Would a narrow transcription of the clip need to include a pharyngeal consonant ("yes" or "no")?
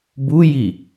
no